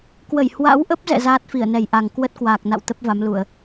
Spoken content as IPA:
k w ə˧˩ j h w a̰˧˥ w ʔ ə˦˥ p̚ z ɛ̰˧˨ z aː˦˥ t̚ f i˧˩ ə̯ n ɛ˨˩ j ʔ a˨˩ ŋ k w ə˦˥ t̚ k w aː˨˩ k̚ n a̰˧˨ w t̪ ə˦˥ p̚ v a˨˦ m l u˧˩˨ ə̯

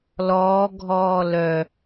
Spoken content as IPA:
l ɔː ɡʱ ɔː l œ

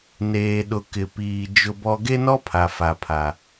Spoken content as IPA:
n eː˨ ɗ ʊ˨ k ɪ˨ p iː˨ d͡ʒ ʊ˦ b ɔ˦ ɡ e˦ n ɔ˦ pʰ a˨ f a˦ pʰ a˦

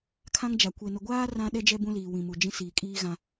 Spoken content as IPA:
kʰ ã˦ ŋ d͡ʒ a˨ kʷ e˨ n ʊ˨ ɡʷ aː˦ r ã˦ ɗ ɛ˦ d͡ʒ ɛ˦ b ũ˦ l iː˨ w ĩ˨ m u˨ d͡ʒ ĩ˦ s iː˨ kʼ iː˦ ɣ ã˦

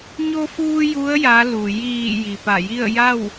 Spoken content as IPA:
ɲ o˧ f uː˧ j u˧˥ ə̯ j a˧˥ l u˩ j iː˧˩ j i˩ p a˧˩ j i˥˨ ə̯ j a˥˨ w

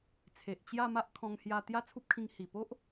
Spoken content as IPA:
t͡sʰ e˨ ʔ t͡ɕ j a˥˧ m a˦ ʔ kʰ ɔ̃˧ ŋ h j a˧ t̪ j a˥˧ t͡sʰ u˦ p̚ kʰ ĩ˧ ŋ h i˨˩ p o˦ ʔ

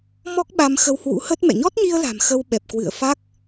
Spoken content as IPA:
m ɔ˦˥ k̚ ɓ a˧ m x ə˧ w h w ṵ˧˥ h ə˦˥ t̚ m ɛ̰˧˨ ɲ ɔ˦˥ t̚ ɲ i˧ ə̯ l a̤˨˩ m x ə˧ w ɓ ɛ˨˩ p̚ k w ɨ̰˧˨ ə̯ f a˦˥ k̚

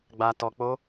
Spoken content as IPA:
ɡ͡b a˧ t ɔ˧ k͡p o˦

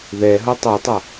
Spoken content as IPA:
ð ɛ ɦ ʌ tˤ ɯ tˤ ʌ

